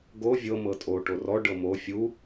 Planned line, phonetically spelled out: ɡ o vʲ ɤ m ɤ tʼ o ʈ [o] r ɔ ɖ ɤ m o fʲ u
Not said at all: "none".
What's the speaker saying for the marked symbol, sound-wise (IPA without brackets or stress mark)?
o